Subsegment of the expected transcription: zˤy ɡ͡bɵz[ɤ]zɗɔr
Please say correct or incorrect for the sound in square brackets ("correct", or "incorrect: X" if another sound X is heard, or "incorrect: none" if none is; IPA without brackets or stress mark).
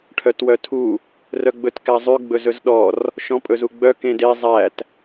incorrect: ɵ